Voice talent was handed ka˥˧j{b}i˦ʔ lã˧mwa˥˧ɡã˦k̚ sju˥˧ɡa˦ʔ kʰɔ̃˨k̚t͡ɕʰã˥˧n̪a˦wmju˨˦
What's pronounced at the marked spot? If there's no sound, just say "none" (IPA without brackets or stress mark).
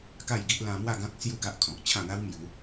ɡ